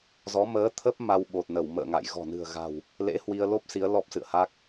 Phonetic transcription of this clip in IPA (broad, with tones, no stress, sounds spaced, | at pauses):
z ɔ˨˦ m əː˨˦ t̪ʰ ə˦˥ p̚ m a˧ w ɓ o˨˩ t̚ n ə˧˩ w m ə̰ː˧˨ ŋ a̰˧˨ j ɣ ɔ̤˨˩ n ɨ̤˨˩ ə̯ ɣ a̤˨˩ w | l ḛ˧˥ h w i˧ ə̯ l o˦˥ p̚ s i˨˦ ə̯ l ɔ˦˥ p̚ s ɨ̰˧˨ ə̯ h a˦˥ k̚